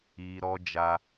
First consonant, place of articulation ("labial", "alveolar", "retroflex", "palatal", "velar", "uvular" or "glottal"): alveolar